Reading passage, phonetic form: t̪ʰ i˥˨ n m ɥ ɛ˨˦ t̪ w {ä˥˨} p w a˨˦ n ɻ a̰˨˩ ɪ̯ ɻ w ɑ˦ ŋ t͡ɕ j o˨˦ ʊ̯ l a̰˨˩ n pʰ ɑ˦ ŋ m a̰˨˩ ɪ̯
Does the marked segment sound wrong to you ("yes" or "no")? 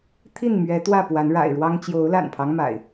no